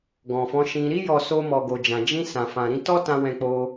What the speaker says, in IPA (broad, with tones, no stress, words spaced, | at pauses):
ɡɔ̃˨fɔ̃˨˦ʃĩ˧ ɾi˧jɔ˨ so˧mɔ˨ɡo˨d͡ʒã˨ d͡ʒĩ˧sã˨ fã˨ɾĩ˨˦ tɔ˦tã˧ wɛ̃˧k͡po˧